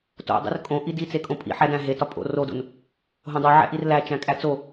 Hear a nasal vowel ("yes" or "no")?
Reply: yes